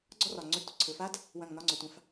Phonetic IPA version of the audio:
ɡ͡ǀ ɔ˦ r ɒ˨ ŋ͡ǀ ɵ˧ d tʷ ə˨ ǀʰ ɵ˨ f a˦ d | w ɐ̃˦˨ ŋ n ɒ˦ ŋ͡ǀ ɔ˨ tʷ ã˧ f

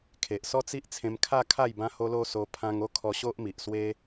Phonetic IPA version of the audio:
kʰ e˨ ʔ s ɔ˦ t͡s i˦ ʔ t͡sʰ ẽ˧ m kʰ a˥˧ kʰ a˥˧ j b ã˧ h o˧ l o˧ s o˧ pʰ ã˧ ŋ o˥˧ kʰ ɔ˧ ɕ o˦ ʔ m i˨ ʔ s w e˦

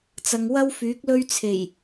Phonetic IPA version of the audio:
t͡s ɐ˨ ŋ w ɐ˥ w f yː˨˥ k̚ l ɵ˥ ɥ t͡sʰ e˨˩ j

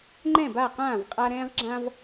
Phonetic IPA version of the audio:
ŋ͡ǃ ɛ̃˥˩ b a˥˩ q ãː˥˩ v qʼ a˦ ɾ ɛ̃ː˦ ʁ ɡ͡ǁ ã˦ v

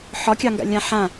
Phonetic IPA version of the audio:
ħ ɒ kʲ ɑ ŋ ɡ a̰ lʲ ã ħ ã

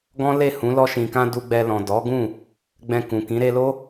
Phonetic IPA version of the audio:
ɡ ɔ̃˦ l e˦˨ h ũ˨˦ l ɔ˧ ʃ ĩ˨ k ã˧ d u˧ ɡ͡b ɛ˧ l ɔ̃˨ d ɔ˨˦ ɡ ũ˦˨ | ɡ͡b ɛ̃˧ k ũ˨ k ĩ˨˦ ɾ e˧ l o˦

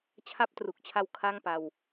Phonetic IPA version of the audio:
t͡ɕʰ a˥˩ p̚ t r u˨˩ k̚ t͡ɕʰ a˦˥ w kʰ a˥˩ ŋ p a˧ w

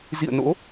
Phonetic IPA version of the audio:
z ḭ˧˨ ə̯ n o̰˧˥

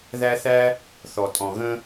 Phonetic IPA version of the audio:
ð æ˥ θ æ˥ | θ ɔ˨ tʼ ɔ̃˨ ɣ ə̃˦

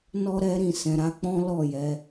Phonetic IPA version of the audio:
n ɔ˦ ɾ ɛ˦ ɾ ĩ˦˨ s ɛ̃˨ ɾ a˨˦ k͡p ɔ̃˦ l ɔ˦˨ j ɛ˨˦

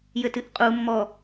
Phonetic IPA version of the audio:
j ɘ t ɨ ʔ qʼ u mː ɔ

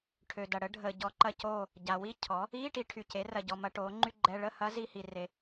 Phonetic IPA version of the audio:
ʈʰ ø˨ d ɐ˨ ɽ ə˩˥ ɖʱ əː˨ ɟ ɔ˧˥ ǃ ɐ˥˨ c oː˥˨ | ɟ a˨ w i˥ cʰ ɔ˩˥ | iː˧˥˧ ʈ i˨ ʈʰ y˨ c e˩˥ r ɐ˨ ɟ ɔ˨ m ɐ˧˥ ʈ oː˩˥ ŋ͡ǃ y˥ ɡ͡ǃ ɛ˧˥˧ ɭ ə˥˨ h ɐ˧˥ z i˧˥˧ h i˨ r e˨

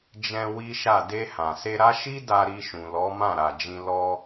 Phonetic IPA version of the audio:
d͡ʒ ɛ̃˧ w i˦ ʃ a˦˨ d e˧ h ã˨ s e˧ ɾ a˦ ʃ i˦ d a˧ ɾ i˧ ʃ ũ˨ l ɔ˨˦ m ã˦˨ ɾ a˨ d͡ʒ ĩ˧ l ɔ˧

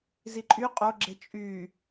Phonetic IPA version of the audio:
z i ǃʼ y qʼ o ɡ͡ǁ e t͡ʃʼ y

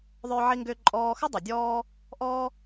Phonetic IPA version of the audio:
ðˤ ʏː˧ ʕ i˧ ŋ ɡ ʏː˧ ǃʼ ɔː˧ x ə˦ dˤ ɪ˨ dʲ ɔː˦ | ʔ ɔː˦

